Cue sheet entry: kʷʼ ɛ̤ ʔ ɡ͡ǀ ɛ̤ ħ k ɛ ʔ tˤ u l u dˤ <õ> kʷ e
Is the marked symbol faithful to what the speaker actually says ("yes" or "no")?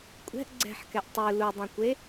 yes